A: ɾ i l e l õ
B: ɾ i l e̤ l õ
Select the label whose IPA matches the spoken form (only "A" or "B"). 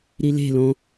B